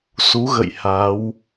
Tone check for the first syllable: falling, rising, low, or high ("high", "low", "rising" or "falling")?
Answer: rising